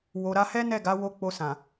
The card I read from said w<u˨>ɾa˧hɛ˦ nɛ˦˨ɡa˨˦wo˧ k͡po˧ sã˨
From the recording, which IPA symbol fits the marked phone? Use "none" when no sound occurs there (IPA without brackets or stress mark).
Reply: o˨